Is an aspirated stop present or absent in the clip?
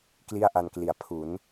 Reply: present